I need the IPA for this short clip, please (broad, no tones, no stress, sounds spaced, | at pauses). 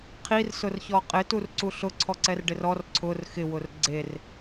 qʰ i r s ʊ r ç ɔ qʼ ɪ t u r ǀ u ɬ ʊ ǀʰ ɔ ǀ ɛ r ɖ ɪ r ɔ r ǀʰ ʊ r x ɪ w ʊ r ɡ͡ǀ e r